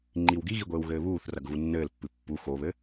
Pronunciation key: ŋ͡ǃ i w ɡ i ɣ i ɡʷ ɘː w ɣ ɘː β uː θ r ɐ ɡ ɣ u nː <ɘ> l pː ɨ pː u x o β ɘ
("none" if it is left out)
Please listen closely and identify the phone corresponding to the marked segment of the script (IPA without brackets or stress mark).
ɘː